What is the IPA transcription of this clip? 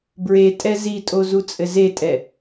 bɹe tʼɛzitʼo zut͡sʼɘzetʼɛ

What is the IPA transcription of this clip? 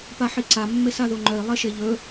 paħiǀa mːesaðoŋ͡ǃœi̯ lˠeʃeʎɵ

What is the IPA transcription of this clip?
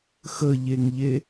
xəʎeŋʎe

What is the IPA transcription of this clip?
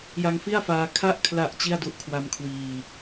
ja˧ŋfi˥˩a̯faː˧ kʰa˦˥ʔkʰla˨˩ʔ t͡ɕi˥˩a̯du˦˥ʔkʰwa˧mkʰwiː˨˩

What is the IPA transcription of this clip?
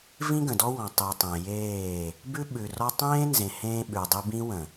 vĩ˦ɡə̃˨dɔ˦wɔ̃˨ tˤi˨tˤẽ˨ jeː˦˨ | bʉ˦ɓʉ˨rɔ˦ tˤẽː˦nzẽ˨ hẽː˦ɓʉ˨dˤi˦ bĩ˦wə̃˨

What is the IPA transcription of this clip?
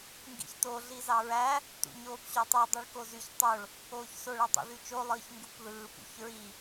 ŋɡḭçto ɮizɑɹæ | tṵɲoːpɕotˤɯ dˤyɭkozyç tˤoɭ | oːçsoɭ ætˤṵðyt͡ʃo lˠɯːçŋɡupðɯːp ṵçɹi

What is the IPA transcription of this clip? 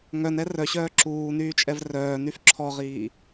ŋœnɛ rœɕœː ǁuːnyːt͡ʃʼɛv rœːnyf ǁʰɔʁiː

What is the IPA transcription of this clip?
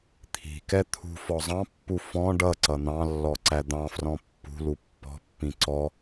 t̪ʰi̤kɛ t̪ʰṳfɔ zˤɑ̃pːu fɔ̃ ɖʌ ǀʌn̪ɑ̃lːɔ ǀæd̪ɑ̃frɔ̃ pːṳ lupːɔ̤pːĩ ǀɔ

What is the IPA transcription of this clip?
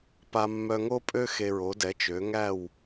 pa˧mːœ˧ŋo˥pʼø˥ xe˧ɹo˩˥dɛ˩˥t͡ʃø˩˥ ŋæ˥˩w

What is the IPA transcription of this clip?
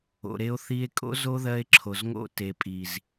o̰˨ɾe˧o̯θi˧e̯kʼo̰˦ zo˦ðɜ˧e̯ǁʰo˨zŋo̰˧ te˨pʼi˨z

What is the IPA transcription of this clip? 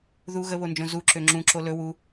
ðu ɣəβond͡ʒõ zuǁø ŋ͡ǁũǁo lɵ wu

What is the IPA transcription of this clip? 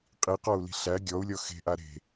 qʼiqɔu̯li̤ ɬæ ɡʲɔu̯lʲɔ xe̤ʔa ɾe̤

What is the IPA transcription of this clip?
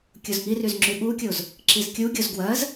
kʲozŋiryz ŋ͡ǁyɓukʲoz | ǁizkʲuɡʲoz ɡwɜz

